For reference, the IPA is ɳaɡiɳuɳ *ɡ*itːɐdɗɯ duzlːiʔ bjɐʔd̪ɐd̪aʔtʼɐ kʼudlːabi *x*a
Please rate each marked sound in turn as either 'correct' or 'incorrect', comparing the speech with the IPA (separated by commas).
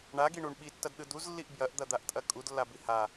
incorrect, incorrect